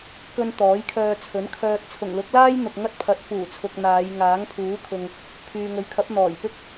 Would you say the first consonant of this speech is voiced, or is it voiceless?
voiceless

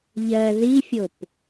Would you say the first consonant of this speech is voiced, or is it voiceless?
voiced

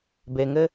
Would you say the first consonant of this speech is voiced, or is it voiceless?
voiced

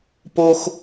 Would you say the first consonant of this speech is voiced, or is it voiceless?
voiceless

